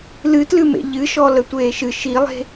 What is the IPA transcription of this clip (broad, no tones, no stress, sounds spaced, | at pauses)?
l ɨ t l ɨ m ḛ ʎ ɨ ʃ ɔ l ə tʷ eː ʃ ɨ ʃ i lˠ e̤